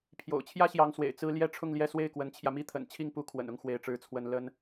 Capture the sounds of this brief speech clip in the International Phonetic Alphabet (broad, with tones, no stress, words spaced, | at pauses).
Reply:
pʰjo̰˨˩ʊ̯t͡ɕʰjä˥ɕjɑ˧˥ŋswḛ˨˩ɪ̯ t͡sɹ̩˥ ljɛ˥ʈ͡ʂʰʊ˥˧ŋljɛ˥˧ swe˥˩ɪ̯kwə˧˥nt͡ɕʰjä˧ mi˥t̪ʰə̰˨˩nt͡ɕʰi˥˩ŋpu˥ kʰwə̰˨˩nʊ˥˧ŋ xwe˥˩ɪ̯ʈ͡ʂɻ̩˥t͡sʰwə˥n lə˥n